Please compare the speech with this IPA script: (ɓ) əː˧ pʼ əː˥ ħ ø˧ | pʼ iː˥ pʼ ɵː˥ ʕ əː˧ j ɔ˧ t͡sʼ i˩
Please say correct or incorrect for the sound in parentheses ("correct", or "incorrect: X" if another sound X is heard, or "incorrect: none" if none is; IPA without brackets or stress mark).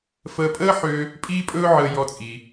incorrect: f